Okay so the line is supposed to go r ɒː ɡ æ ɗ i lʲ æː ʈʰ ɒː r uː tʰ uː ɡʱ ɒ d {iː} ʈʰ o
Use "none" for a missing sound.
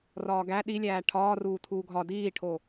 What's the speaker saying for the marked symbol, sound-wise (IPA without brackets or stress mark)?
iː